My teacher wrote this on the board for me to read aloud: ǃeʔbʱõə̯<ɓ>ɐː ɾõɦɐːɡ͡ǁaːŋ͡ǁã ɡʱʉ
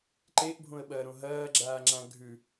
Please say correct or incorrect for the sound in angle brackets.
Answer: correct